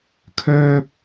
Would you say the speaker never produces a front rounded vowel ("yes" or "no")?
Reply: no